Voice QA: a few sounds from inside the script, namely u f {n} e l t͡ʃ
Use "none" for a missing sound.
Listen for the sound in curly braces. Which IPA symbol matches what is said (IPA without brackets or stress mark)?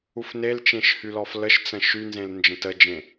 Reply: n